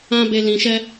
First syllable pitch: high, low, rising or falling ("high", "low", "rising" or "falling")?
high